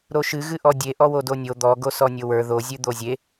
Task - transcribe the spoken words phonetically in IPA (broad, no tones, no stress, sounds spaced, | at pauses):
ɾ o ʃ ɨ ɣ ɨ ʔ ɔ dʲ e ʔ ɔ w o d o nʲ o d̪ ɔ ɡ o s ɔ nʲ o w ə˞ ð o zʲ ɨ d̪ o zʲ e